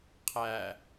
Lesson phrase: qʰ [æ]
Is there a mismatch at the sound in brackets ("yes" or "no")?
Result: no